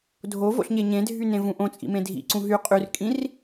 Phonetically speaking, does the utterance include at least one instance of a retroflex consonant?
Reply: no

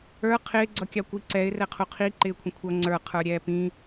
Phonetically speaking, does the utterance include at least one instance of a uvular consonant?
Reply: yes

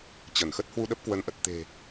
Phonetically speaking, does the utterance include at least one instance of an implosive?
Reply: yes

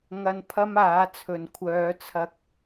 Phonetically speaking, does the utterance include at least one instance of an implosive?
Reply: no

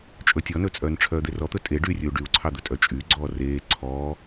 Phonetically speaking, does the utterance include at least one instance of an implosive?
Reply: no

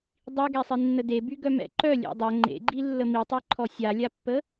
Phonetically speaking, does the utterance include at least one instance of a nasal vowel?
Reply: no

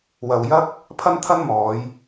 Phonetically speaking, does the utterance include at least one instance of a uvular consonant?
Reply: no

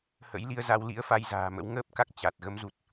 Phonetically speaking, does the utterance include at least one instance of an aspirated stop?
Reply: no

